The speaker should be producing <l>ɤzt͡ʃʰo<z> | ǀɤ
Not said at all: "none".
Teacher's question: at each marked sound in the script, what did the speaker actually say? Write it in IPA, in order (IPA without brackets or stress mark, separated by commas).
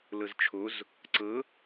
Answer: l, z